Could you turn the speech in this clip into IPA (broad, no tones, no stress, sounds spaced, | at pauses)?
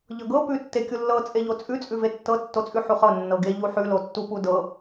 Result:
ʎ ɤ ɡ ɤ p ʉ tː e kʲ u lː ɤ t͡sʼ e ʎ o t͡sʼ ʉ t͡sʼ ʉ v e tː ɤ tː o t͡sʼ ʉ ħ u χ ɤ nː ɤ ɡ e ʎ u ħ ʉ l o tː u p u d ɤ